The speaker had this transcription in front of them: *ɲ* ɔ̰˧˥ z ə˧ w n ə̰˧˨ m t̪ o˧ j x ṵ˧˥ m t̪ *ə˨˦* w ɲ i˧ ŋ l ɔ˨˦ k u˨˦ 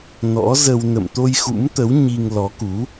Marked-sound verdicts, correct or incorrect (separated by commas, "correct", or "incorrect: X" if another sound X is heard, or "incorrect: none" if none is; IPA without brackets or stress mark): incorrect: n, correct